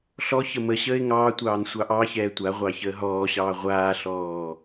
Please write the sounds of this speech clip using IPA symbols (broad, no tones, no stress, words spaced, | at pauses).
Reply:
ɬɔ çəməɕəːɪ̯ ŋɑː tʷɑːnsʷɑʔɑçɛː tʷaʁʷɑ çəːɦɔːɕɑː ʁʷaːɬɔː